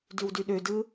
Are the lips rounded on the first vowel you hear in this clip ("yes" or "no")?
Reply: yes